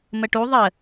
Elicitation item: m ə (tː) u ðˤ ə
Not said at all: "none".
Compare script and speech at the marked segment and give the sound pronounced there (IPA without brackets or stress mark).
ʈ